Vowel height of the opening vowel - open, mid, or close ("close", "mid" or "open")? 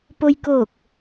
mid